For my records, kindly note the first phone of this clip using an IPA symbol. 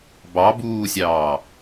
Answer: b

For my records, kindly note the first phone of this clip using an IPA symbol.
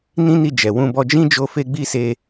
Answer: n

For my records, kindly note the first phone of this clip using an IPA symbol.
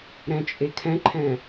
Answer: ɾ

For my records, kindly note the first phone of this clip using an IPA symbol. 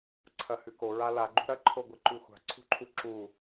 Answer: ǀʰ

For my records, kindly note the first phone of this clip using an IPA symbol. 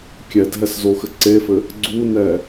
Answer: kʲ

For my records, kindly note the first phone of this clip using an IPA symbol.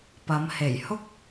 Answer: p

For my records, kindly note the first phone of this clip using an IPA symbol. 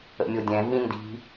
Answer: ə̰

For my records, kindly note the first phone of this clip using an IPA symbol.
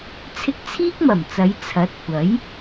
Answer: t͡sʰ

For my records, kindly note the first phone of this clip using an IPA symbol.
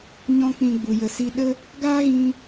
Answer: ɲ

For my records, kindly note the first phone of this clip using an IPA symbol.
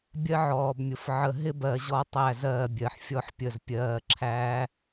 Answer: bʲ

